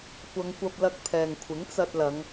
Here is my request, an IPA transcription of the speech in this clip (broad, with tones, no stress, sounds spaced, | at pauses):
kʷ ɐ˨˧ ŋ kʷ ɐ˧ p̚ l ɐ˧ k̚ pʰ ɛː˨ ŋ kʷʰ ɪ˨˥ ŋ t͡s ɐ˧ t̚ l ɐ˨˧ ŋ